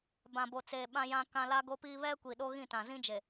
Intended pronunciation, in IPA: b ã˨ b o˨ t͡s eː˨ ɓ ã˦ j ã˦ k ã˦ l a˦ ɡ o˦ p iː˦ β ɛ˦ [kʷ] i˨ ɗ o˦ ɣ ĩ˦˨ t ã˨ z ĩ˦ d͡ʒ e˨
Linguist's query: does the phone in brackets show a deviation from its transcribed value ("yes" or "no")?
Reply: no